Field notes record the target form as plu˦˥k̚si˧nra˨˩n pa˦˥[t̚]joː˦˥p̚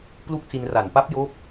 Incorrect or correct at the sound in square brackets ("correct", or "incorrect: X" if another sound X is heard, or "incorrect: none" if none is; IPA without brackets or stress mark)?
incorrect: p̚